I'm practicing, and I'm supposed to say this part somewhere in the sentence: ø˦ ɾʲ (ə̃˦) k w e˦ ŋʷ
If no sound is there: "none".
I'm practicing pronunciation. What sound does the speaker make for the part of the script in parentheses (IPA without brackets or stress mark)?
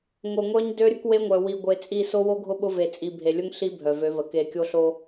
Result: ə˦